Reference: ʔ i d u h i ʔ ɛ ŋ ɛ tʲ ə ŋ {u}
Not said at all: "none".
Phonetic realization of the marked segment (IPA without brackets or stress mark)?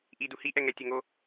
o